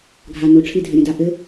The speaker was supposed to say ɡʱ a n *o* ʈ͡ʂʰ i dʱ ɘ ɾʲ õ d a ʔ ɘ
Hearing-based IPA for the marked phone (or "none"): o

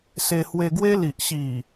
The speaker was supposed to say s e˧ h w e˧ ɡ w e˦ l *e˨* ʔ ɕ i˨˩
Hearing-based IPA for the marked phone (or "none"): i˨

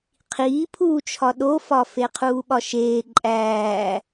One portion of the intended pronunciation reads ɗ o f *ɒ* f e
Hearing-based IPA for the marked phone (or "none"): ɒ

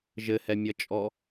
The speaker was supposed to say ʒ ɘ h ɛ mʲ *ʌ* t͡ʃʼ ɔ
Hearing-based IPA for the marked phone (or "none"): ʌ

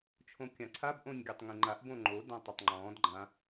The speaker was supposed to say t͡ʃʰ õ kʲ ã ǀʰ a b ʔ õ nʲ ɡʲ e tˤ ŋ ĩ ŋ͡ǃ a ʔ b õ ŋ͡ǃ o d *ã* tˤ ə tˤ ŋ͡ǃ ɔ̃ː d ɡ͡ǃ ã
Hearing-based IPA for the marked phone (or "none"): ã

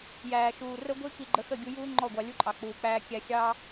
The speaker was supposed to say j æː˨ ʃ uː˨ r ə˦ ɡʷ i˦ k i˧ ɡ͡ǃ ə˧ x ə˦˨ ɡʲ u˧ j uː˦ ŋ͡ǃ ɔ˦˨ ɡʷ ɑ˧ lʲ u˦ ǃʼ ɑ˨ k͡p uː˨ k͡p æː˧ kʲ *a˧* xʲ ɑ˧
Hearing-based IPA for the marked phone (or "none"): æ˧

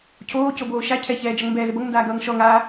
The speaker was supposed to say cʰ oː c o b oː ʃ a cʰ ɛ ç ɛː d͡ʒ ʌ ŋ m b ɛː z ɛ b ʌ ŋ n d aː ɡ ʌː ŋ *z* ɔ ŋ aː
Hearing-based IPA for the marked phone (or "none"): ʃ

